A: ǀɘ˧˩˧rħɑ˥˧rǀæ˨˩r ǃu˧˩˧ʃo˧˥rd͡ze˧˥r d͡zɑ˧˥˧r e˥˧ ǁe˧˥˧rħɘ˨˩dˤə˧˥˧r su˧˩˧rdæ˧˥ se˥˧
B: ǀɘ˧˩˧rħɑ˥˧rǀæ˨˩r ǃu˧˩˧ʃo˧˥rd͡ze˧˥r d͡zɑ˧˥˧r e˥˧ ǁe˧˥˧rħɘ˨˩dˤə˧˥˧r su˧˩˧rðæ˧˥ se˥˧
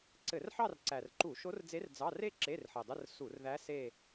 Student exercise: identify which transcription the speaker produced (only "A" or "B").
B